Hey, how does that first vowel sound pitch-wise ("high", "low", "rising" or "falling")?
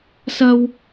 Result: high